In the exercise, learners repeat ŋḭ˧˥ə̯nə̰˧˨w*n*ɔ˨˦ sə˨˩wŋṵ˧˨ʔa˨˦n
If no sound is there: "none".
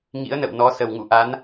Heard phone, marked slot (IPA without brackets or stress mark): n